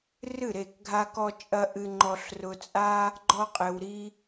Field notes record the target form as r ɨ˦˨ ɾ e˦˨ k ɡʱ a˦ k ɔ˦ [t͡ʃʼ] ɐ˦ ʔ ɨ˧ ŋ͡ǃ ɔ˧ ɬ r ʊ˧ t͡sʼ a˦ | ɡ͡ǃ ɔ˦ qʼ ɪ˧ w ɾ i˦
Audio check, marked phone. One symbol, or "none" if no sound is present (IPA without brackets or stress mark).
t͡ʃʼ